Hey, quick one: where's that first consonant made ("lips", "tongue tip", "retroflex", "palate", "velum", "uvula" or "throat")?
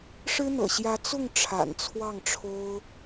retroflex